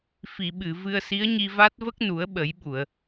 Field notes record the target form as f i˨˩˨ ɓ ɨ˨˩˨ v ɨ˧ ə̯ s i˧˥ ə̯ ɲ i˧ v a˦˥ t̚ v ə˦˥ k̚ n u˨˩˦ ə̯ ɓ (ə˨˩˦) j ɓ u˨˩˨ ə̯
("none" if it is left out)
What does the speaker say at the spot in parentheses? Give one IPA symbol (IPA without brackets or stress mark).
ə˨˩˦